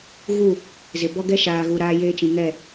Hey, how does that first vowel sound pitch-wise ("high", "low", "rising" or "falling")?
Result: falling